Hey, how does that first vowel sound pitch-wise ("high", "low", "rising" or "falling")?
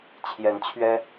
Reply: rising